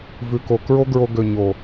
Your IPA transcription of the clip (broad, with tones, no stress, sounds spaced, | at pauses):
v ʉ˨ k o˨ k ɹ o˦ ɡ ɹ o˧ ɡ ø˨ ɲ o˨